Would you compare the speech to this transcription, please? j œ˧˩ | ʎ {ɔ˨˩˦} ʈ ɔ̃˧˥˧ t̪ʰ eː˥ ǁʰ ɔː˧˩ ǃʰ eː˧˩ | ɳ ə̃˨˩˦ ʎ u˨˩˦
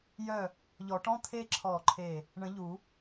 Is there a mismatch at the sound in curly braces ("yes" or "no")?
no